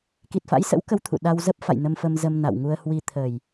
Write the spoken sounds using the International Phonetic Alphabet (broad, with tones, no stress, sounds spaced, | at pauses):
k i˨˩ t̚ f a̰˧˥ j s ə̰˧˥ w k ə˨˦ w t̪ʰ ṵ˧˨ ɗ a˧ w z ə˦˥ p̚ f a̰˧˨ j n ə˧ m f ə˧ m z ə˧ m n a̰˧˨ w ŋ u˧ ə̯ h w i˧ t̪ʰ ə˨˩ j